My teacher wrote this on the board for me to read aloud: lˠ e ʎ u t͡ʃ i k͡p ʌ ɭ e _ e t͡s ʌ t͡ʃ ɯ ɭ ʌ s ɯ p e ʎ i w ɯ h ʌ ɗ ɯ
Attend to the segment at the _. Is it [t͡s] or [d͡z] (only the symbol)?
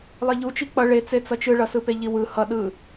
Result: t͡s